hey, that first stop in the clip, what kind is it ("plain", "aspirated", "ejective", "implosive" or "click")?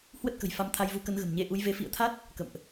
plain